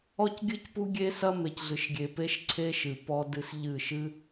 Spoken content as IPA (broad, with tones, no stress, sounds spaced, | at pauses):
ɔ˦ c ɡʲ ɨ˦ c p u˦ ɡʲ e˦ s ɐ˦ m e˨ c ɮ ɨ˨ ʃ ɡʲ e˨ p e˦ ʃ ǀʰ e˦ ʃ ɨ˨ p ɔ˦ d ɨ˦ s ʎ ɨ˦˨ ʃ ɨ˦